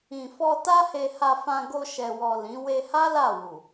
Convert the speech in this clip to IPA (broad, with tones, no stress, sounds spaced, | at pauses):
ĩ˨ f ɔ˧ t a˦ h e˧ h a˧ f ã˧ ɡ o˧ ʃ ɛ˨ w ɔ˨ l ĩ˨˦ w e˧ h a˦ l a˦˨ w u˨